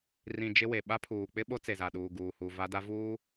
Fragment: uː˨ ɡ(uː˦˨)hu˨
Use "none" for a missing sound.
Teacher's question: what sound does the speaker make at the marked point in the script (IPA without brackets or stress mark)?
uː˨